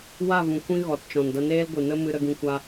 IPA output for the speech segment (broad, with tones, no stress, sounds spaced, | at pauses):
w a˦˨ v ũ˨ kʷ ĩ˦ ɣ ɔ˨ t t͡ʃ ɔ̃˨ n d a˧ n eː˦ l ɡʷ ɨ˨ n ə˦ m ɨ˧ ɾ ə˧ ɡ ĩ˧ kʷ a˧